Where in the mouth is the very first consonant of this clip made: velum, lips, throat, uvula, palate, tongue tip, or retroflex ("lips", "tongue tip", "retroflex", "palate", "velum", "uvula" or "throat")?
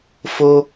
lips